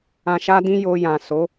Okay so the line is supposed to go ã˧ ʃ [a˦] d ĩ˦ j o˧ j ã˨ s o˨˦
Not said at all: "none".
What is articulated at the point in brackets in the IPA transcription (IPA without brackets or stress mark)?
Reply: a˦